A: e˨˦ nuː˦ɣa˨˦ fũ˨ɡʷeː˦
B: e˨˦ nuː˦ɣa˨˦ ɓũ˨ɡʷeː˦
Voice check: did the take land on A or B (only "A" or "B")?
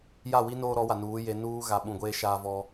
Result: B